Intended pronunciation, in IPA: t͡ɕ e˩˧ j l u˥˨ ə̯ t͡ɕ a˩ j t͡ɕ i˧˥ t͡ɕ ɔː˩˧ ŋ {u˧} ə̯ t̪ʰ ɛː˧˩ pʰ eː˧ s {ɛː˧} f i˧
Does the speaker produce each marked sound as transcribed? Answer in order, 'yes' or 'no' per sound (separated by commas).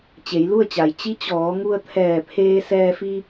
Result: yes, yes